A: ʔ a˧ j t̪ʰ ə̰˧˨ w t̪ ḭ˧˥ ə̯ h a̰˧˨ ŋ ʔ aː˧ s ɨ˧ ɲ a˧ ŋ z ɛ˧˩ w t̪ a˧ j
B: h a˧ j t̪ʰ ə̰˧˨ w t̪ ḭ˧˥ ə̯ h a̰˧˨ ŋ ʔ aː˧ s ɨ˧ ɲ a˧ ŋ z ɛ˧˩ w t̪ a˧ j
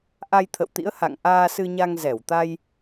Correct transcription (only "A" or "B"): A